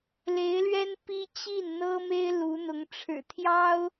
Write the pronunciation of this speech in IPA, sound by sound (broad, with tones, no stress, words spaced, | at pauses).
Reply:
le˧˥ɪ̯lɥɛ˥n pi˥ t͡ɕi˥˩nn̪ɤ˥me˥ɪ̯ lu˧˥n̪ʊ˧˥ŋ ʈ͡ʂʰɻ̩˨˩t̪ʰjɑ˥ʊ̯